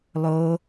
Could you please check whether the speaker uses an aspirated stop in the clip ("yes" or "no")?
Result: no